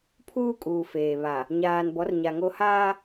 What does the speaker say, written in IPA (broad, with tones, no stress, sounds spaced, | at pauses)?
pʰ uː˦ kʼ uː˨ f eː˨ β a˨ | ɲ aː˨ n b ɔ˨˦ r ɲ a˨ ŋ o˦ h aː˦